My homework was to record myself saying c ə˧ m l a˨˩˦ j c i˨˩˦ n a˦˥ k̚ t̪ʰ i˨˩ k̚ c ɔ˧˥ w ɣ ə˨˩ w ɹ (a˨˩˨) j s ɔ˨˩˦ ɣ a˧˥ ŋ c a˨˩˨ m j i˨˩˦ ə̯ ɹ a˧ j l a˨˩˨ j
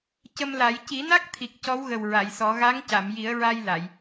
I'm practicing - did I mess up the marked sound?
no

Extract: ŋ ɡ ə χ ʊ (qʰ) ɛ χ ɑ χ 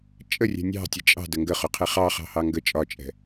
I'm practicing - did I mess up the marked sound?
no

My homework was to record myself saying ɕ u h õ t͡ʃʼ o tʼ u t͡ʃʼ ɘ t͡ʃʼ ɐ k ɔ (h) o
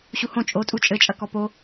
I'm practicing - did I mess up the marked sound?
yes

